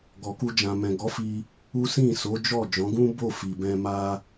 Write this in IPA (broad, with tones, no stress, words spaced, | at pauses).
ɡɔ˨ku˧d͡ʒã˨mɛ̃˨ ɡɔ˨˦fi˧ | u˦ sĩ˦˨so˨˦d͡ʒɔ˦˨ d͡ʒɔ̃˨˦ɡũ˦ bo˦˨fi˨bɛ̃˧ ma˧